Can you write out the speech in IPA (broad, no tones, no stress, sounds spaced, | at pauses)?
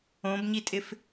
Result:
õ b ɲ i tʼ ɪ f